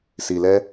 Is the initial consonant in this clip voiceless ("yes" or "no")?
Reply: yes